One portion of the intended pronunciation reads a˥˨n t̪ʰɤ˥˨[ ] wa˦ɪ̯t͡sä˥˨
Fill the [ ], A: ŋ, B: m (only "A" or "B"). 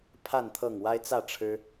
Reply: A